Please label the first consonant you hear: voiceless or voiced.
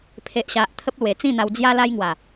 voiceless